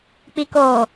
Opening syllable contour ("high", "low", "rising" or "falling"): low